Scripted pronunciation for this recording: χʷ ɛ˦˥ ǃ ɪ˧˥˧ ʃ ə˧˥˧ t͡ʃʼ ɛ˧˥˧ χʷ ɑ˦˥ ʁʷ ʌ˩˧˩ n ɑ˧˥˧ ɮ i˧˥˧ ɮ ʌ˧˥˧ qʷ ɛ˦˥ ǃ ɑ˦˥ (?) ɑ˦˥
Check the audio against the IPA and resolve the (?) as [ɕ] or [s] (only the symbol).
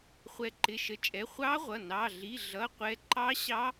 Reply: ɕ